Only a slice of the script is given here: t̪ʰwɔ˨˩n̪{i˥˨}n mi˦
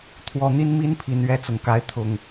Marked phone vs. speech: incorrect: i˦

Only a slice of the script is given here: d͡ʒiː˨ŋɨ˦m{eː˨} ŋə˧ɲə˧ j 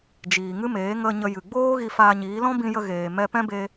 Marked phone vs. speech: incorrect: eː˨˦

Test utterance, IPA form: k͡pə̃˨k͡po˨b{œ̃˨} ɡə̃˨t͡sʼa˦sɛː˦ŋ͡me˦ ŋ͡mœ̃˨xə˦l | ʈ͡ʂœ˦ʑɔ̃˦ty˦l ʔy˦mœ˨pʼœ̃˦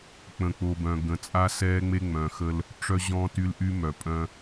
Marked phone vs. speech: correct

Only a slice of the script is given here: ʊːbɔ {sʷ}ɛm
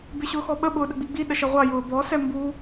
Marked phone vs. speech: incorrect: s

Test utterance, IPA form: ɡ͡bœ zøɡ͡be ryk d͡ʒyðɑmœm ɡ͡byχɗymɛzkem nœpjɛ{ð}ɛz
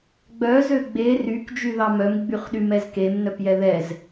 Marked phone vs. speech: correct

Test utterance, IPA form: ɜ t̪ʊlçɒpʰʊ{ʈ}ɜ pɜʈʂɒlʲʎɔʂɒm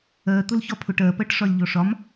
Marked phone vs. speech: correct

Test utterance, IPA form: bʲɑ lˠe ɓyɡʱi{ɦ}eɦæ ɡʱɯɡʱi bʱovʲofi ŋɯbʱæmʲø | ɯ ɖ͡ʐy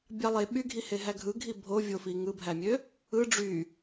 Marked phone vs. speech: incorrect: h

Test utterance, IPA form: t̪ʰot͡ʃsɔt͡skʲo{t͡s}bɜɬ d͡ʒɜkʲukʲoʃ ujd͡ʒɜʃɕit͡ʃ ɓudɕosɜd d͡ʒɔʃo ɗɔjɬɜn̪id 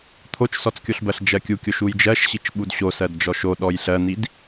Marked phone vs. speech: incorrect: ɬ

